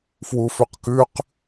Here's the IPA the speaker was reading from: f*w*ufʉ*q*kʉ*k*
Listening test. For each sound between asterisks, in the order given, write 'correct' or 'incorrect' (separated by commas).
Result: correct, correct, incorrect